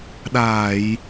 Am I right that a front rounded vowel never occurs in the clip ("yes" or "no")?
yes